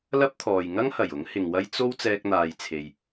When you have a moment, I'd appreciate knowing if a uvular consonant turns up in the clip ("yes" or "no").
no